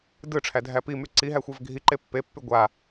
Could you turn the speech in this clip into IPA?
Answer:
d ɯ ʈ͡ʂʰ æ dʱ æ p i m y ǀ i ɦ æ xʷ a v ɡʱ i ǃ e pː e pː y ɡʷ a

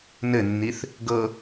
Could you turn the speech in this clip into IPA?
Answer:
n ɘ nː i θ | ɡ ɤ

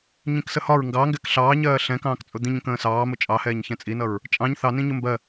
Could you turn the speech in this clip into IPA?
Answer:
ɲ ĩ k s ə h ɒ ɹ ŋ ɡ ɑ ŋ ɡ ɛ k ɬ ɑː ɲ ɜː ɬ ɛ̃ k ɑ̃ː k t͡sʼ ʊ d̪ ĩ ɲ ə̃ k ə̃ː s ɑː m ʊ t͡ʃʼ ɑ h ɛː ɲ ç ɛ̃ t͡sʼ i n ʌ ɹ | t͡ʃʼ ɑ̃ ɲ θ ɑ n ĩ ɲ ʊ m b ɜ

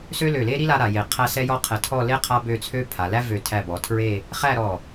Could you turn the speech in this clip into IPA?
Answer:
s ø˥ l ø˧˩ l e˥ ɾ i˥ l a˥ ɾ a˩˧ j e˧˩ qʰ æ˥ s ɛ˥ j ɔ˥ qʰ ɛ˧˩ tʰ ɔ˥˧ l e˥ qʰ a˥ b ø˥˧ t͡sʰ ø˥ pʰ a˩˧ l æ˥ v ø˧˩ tʰ æ˧˩ b ɔ˩˧ tʰ ɹ e˥˧ | χ æ˥˧ ɾ ɔ˧˩

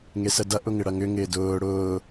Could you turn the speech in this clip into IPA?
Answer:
ŋ e s ə d ɐ ʔ ʊ ŋ ɪ ɽ ɐ ŋ ʏ ŋ ɪː d ʊː ɽ ʊː

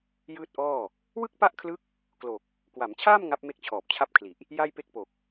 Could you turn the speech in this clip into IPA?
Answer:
j ɯː˥˩ t̚ ʔ ɔː˥˩ | w ɯ˥˩ k̚ p a˥˩ ʔ kʰ l ɯ˦˥ k̚ | k l o˨˩ k̚ | k w a˩˦ m t͡ɕʰ aː˥˩ m ŋ a˦˥ p̚ m e˥˩ k̚ t͡ɕʰ ɔː˨˩ p̚ t͡ɕʰ a˥˩ p̚ kʰ l i˨˩ ʔ | j a˥˩ j p e˥˩ k̚ p o˨˩ k̚

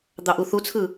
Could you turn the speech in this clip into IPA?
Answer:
d̪ ɑ ʔ u θ u t͡sʰ ɯ

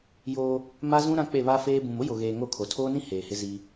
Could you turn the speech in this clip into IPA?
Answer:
j oː˦ | m a˦ z ũ˦ ɾ ã˦ k͡p e˦˨ β a˦ f eː˦ b ũ˨ m ʊ˦ j o˨ ɣ eː˨ ŋ o˦˨ kʰ o˨ tʰ oː˦ n ĩ˦ h eː˨ h ɪ˦ z iː˦

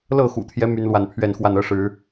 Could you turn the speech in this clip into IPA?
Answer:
l ɤ˥˨ x ṵ˨˩ t̪ʰ j ɛ˦ m y˦ n l w a˥˨ n pʰ ɥ ɛ˥˨ n x w a˥˨ n ɤ˦ ʂ ɻ̩˨˦

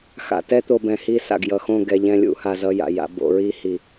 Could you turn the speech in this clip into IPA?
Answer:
x a̰˨ t ɛ˦ t̪ o˨ b ɛ̃˨ h i˦˨ s a̰˨ ɡ j ʌ˨ x õ˦˨ ɡ ɛ˨ ʎ ɛ̃˦ lʲ ṵ˦˨ h a˦˨ z ʌ˦ j a̰˨ j a̰˨˦ b o̰˨˦ ɹ i˦ h i˨

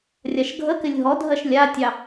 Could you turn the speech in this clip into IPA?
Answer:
rʲ a ʃ ɡʱ ə k ɪ lʲ ɦ ɔ dʱ ɜ ʃ lʲ a tʲ ɑ

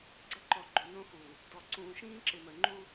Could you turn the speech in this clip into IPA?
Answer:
ɡ͡ǀ ə˦ ǃ ɔ˨ ɡ͡ǃ o˨ n õ˦ x uː˨ | d ɔ˨ ǀ ũː˨ ʃ ĩː˦ ǁ ɪ˨ m əː˨ ŋ͡ǃ uː˦

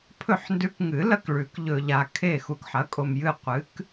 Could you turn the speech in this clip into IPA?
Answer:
pʰ ɵ˦˨ ħ n d ʉ˧˥ k ŋ ɨ˨˩˦ l ɐ˦˨ k ɭ ʉ˨˩˦ k ʎ ɵ˨ ʎ a˨ kʰ e˦˨ x u˨ k ħ ɐ˩˥ kʼ o˨ m j ɨ˦˨ qʷ ɨ˩˥ k

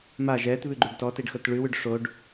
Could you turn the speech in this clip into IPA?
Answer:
m a ʒ ɛː t β ʉ ɡ͡ǃ ʉ ɖ t ɔ t e ɖ x ɤ t ɭ ʉ w ʉ ɖ ʂ o ɖ

